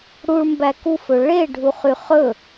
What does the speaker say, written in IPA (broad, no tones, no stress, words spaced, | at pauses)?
ɽuɭmbæ kufɵ ɭeɖʱuχy χɵ